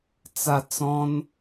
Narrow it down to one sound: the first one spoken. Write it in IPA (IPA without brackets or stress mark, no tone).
t͡s